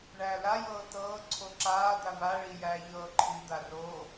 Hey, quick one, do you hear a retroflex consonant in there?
yes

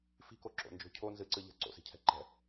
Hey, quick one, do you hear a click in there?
yes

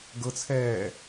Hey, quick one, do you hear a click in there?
no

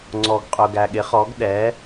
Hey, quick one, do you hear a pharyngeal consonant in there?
no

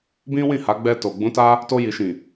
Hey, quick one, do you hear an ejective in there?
no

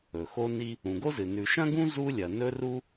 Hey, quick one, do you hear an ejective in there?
no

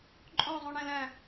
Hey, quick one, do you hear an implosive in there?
no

